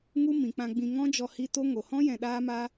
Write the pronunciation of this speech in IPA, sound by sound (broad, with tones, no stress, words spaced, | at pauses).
ŋu˦ mĩ˨k͡pã˧ɡ͡bĩ˧ ŋɔ̃˦d͡ʒɔ˧ hi˦ to˦ ŋo˨hɔ̃˦ jɛ̃˧ɗaː˦maː˦